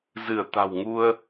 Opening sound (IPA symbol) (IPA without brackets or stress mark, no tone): z